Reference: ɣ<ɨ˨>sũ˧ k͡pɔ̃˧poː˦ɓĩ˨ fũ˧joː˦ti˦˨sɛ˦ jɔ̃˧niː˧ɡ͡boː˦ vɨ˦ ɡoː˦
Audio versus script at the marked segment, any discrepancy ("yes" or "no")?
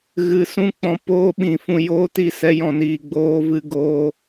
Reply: no